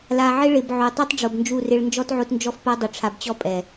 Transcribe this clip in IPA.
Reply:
la˨ʕɪ˦ ɭɪ˨b ʕo˨ tˤi˦tˤɖ͡ʐo˨bnd͡ʒu˦˨rɪ˦ɭ nd͡ʒɔ˦tʕo˦tnd͡ʒɔ˦fpa˦ dˤʊ˨ʈ͡ʂʰa˨bt͡ɕɔ˦ pʼɛ˨

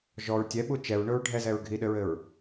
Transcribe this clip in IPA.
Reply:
ʒɔɹ tʲɛɓu t͡ʃɛɹɳʊɹ ɖʱɛzɛɹ ɡʱiɗɘɹɘɹ

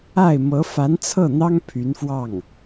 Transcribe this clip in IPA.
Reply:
a˥˩ɪ̯mɤ˧˥ fa˧˥nt͡sʰɤ˥˩n̪ɑ˥ŋ pʰy˧˥nfwɑ˥˩ŋ

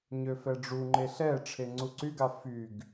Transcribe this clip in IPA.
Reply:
ɲøfɛɖ͡ʐuŋ͡ǃe ɬɛ ʈ͡ʂʰeŋ͡ǀuǀyɡa fyɡ

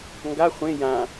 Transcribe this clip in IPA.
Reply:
ŋɡa χʷẽ jã

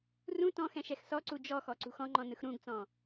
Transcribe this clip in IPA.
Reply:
rũ tɔ̃xɛ̃ ʃɛxsɔǀu d͡ʒɔxɔ ǀṳxɔ̃ŋ͡ǃɔ̃ nɯxɾũɡt͡sɔ̃

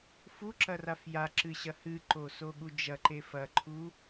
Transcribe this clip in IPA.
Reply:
fuǁɐraf jaǁɨɕɐ hɨǃosoɠu d͡ʒɐǃe fɐǃʰu

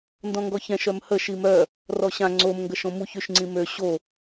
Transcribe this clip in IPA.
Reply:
ndɔ̃ŋɡɔçɛ̃ʃ œmhə ʃimœ | rɔɕã ŋ͡ǀom ŋɡəʃõmuç yʃŋ͡ǀĩmø ɕo

